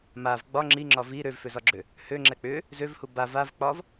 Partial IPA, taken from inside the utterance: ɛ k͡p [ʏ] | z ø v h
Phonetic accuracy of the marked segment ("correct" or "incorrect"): correct